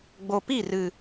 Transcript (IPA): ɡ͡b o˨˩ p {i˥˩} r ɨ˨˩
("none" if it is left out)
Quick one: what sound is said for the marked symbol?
i˥˩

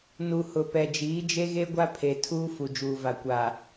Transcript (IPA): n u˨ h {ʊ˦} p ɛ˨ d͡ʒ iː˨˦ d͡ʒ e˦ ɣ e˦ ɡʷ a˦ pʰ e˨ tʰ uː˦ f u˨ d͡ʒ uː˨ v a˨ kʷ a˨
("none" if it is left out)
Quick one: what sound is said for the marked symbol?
ʊ˨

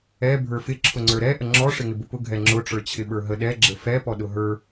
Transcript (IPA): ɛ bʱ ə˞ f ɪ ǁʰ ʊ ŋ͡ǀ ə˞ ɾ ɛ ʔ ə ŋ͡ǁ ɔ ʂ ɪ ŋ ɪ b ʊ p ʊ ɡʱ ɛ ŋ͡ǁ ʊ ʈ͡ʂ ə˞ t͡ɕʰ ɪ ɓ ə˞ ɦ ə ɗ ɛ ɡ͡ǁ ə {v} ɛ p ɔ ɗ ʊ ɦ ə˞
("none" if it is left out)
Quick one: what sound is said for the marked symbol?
f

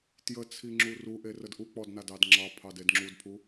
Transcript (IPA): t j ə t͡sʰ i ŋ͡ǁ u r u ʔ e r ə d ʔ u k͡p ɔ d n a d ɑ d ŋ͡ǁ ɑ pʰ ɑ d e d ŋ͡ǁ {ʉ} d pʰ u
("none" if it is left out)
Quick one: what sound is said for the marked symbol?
u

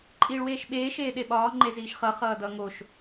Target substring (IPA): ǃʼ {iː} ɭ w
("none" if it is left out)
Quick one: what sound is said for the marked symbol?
iː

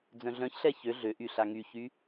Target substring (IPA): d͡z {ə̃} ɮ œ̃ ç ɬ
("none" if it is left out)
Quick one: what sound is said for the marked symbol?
œ̃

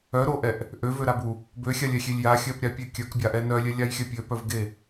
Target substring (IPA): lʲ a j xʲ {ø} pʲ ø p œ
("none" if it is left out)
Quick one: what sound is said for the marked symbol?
œ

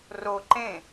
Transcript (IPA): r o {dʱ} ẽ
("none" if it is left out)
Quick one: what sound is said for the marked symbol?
ǃ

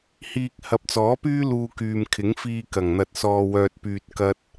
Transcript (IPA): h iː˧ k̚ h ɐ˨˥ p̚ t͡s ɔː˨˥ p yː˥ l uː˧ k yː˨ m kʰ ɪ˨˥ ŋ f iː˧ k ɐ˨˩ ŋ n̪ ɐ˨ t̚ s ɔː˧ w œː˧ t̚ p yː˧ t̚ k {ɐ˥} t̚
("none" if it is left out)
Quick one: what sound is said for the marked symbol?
ɐ˥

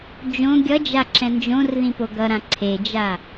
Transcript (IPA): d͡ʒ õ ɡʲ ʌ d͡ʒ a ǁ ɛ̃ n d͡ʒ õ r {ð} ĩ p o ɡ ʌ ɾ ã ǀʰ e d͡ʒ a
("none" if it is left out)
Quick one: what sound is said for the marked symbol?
ð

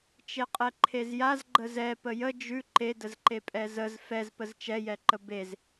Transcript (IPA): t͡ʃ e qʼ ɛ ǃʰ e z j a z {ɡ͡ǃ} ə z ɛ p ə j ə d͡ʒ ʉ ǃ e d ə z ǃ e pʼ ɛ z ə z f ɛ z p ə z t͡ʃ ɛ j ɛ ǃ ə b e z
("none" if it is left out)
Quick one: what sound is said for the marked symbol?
ɡ͡ǃ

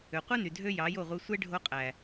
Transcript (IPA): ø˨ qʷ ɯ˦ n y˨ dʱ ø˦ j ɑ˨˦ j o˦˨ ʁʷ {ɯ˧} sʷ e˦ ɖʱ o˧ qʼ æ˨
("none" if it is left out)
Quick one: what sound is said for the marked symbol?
ɯ˧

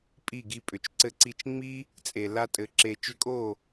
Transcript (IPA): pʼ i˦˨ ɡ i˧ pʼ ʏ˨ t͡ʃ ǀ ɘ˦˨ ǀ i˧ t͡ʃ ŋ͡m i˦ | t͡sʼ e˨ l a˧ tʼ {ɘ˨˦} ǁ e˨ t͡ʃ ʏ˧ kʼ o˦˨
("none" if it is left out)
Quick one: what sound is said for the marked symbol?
ɘ˨˦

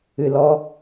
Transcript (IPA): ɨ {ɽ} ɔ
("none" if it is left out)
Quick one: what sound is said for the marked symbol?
l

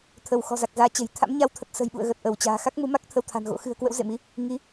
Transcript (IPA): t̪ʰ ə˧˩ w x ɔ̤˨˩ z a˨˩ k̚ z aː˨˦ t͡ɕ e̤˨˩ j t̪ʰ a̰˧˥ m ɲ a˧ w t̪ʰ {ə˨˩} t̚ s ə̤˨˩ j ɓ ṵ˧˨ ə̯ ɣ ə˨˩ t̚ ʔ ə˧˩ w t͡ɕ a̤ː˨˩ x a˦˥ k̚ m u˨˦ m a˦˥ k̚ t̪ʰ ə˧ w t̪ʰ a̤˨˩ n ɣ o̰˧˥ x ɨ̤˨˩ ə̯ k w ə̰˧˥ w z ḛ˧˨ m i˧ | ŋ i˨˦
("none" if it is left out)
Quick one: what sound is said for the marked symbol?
ə˨˩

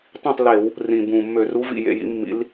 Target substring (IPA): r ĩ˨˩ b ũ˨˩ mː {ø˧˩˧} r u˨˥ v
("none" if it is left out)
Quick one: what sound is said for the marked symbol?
ø˧˩˧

